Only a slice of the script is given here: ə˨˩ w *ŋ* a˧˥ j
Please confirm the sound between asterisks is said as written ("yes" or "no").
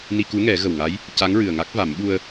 yes